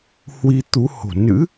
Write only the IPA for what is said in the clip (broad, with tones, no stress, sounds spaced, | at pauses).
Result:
h w i˧ t̪ u˨˦ h o̤˨˩ n ɨ̰˧˥